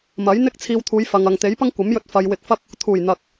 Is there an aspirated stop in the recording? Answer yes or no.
yes